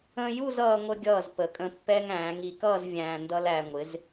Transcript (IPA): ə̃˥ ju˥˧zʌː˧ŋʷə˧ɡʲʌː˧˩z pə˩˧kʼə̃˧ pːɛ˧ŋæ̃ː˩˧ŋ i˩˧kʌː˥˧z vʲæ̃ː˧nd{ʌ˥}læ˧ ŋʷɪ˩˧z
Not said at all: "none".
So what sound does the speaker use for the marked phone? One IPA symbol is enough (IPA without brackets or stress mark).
ʌ˥